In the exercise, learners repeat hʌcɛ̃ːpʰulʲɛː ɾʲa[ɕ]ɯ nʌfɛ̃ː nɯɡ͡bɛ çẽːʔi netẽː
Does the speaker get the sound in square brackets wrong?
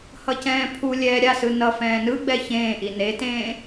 yes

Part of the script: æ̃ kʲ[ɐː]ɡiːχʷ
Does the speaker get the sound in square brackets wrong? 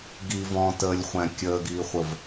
yes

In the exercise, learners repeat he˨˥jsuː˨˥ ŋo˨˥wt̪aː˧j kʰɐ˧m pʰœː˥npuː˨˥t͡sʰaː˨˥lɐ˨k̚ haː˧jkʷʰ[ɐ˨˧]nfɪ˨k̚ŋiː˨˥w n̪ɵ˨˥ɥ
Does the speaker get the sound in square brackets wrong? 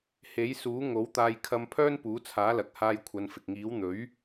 no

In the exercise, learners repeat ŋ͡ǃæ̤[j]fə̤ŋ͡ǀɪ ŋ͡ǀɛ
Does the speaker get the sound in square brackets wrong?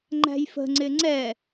no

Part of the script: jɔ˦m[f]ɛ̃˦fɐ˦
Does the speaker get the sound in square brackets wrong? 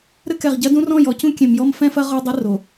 no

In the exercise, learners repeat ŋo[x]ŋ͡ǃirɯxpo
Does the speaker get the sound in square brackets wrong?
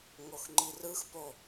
no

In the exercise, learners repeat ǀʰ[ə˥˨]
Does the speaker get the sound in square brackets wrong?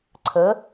yes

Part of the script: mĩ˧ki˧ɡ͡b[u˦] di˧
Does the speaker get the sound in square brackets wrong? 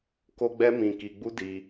no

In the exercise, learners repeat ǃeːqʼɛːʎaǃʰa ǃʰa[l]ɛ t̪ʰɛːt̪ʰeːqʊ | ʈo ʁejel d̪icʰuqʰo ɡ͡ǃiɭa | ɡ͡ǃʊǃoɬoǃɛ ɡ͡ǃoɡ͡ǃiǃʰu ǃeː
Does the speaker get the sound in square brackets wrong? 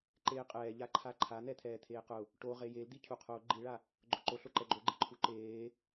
yes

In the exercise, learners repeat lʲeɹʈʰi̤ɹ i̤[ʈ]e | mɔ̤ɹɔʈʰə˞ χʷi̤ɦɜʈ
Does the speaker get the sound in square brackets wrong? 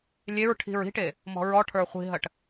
no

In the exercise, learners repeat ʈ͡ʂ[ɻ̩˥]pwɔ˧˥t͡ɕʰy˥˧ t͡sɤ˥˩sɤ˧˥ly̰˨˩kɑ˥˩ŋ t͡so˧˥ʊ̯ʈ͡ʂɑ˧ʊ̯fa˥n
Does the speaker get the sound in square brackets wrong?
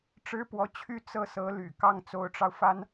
no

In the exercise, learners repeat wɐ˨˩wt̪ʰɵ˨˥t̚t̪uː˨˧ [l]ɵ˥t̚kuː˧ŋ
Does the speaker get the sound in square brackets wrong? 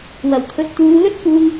no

